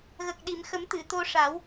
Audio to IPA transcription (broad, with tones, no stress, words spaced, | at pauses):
ɣə˨˩k̚ɗi˨˩˨mxə˨˩˦m t̪ɨ˨˩˨t̪o˧ʂa˨˩˦w